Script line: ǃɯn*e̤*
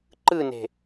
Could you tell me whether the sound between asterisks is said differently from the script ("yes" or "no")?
no